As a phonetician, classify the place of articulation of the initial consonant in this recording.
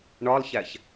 retroflex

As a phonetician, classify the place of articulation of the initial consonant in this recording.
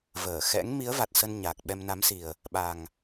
labial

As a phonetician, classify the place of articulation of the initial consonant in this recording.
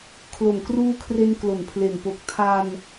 velar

